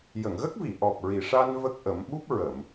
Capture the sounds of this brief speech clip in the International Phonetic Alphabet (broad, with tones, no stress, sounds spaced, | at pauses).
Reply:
j ə˨˩˨ ŋ ɣ ə˦˥ k̚ v i˨˩˨ ʔ ɔ˨˩ p̚ ɹ i˨˩ ʂ a˧ n v ə˦˥ k̚ ʔ ə˨˩˦ m ɓ u˦˥ p̚ ɹ ə˨˩˨ m